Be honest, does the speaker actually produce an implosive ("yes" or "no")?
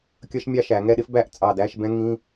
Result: yes